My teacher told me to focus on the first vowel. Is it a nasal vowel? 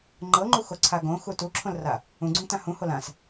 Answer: no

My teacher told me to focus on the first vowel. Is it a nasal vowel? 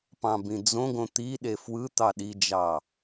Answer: yes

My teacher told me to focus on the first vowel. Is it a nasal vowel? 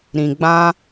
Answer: yes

